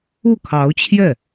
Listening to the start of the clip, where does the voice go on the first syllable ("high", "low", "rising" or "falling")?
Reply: falling